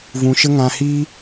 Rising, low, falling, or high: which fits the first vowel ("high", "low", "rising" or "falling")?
low